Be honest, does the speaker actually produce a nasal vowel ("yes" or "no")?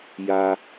no